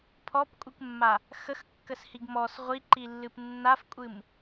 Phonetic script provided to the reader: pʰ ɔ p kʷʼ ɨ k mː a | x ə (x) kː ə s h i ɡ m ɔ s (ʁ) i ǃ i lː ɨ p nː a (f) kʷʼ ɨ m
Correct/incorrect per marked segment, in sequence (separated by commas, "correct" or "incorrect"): correct, incorrect, correct